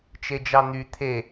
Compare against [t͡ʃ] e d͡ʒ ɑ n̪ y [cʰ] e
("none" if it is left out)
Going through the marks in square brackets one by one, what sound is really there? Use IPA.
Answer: t͡ʃ, t̪ʰ

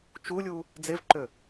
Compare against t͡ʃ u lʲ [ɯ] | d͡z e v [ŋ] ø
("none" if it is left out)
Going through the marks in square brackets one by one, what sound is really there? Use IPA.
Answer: u, ǃ

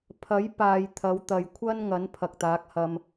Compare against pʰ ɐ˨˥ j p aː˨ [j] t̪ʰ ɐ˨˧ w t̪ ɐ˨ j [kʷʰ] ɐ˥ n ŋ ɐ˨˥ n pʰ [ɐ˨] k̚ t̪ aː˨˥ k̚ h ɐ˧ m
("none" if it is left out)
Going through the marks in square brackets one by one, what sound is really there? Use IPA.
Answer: j, kʷʰ, ɐ˨

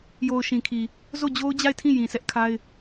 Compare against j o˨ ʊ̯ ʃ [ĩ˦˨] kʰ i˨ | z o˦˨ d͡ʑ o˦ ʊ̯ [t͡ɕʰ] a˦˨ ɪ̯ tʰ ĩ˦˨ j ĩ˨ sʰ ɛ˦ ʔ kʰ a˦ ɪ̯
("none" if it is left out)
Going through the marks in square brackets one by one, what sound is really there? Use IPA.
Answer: ĩ˨, d͡ʑ

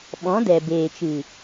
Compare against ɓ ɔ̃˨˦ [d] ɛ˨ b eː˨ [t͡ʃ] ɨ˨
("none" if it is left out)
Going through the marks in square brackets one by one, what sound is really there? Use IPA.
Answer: d, t͡ʃ

